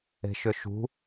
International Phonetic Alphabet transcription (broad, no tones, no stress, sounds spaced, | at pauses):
e̤ ʃ ʏ ʃ ṳ